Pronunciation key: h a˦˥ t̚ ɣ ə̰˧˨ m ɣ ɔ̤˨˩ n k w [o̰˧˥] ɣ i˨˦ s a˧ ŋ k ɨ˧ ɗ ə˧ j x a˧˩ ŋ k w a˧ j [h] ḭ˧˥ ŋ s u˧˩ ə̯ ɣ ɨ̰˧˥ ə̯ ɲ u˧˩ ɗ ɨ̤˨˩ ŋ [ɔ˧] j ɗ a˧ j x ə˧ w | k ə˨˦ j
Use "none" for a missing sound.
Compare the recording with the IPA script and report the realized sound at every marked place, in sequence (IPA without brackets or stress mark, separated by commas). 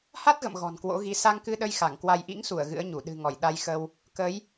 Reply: o̰˧˥, ʔ, ɔ˧˩